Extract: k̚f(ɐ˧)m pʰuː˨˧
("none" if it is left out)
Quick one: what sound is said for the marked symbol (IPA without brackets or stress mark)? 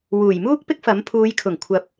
ɐ˨˥